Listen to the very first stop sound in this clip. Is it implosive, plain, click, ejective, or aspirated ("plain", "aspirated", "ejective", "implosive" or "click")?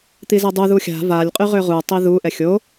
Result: plain